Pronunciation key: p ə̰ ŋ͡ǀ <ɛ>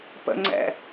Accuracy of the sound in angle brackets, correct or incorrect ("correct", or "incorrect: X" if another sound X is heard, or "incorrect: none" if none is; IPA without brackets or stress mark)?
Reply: incorrect: ɛ̰